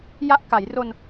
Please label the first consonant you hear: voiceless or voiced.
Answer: voiced